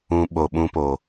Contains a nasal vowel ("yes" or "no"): yes